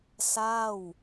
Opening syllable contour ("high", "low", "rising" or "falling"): falling